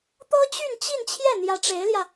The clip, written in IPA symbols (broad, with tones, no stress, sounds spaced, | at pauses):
t̪ ɤ˥ t͡ɕ y˥˧ n t͡ɕ i˥˧ n t͡ɕʰ j ɛ˥˩ n̪ j ä˧˥ ʈ͡ʂ e˧˥ ɪ̯ l j ä˧